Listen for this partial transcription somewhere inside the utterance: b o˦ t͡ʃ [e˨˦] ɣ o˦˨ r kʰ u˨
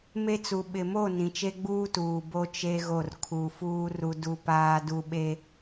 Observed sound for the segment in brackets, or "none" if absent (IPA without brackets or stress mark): e˦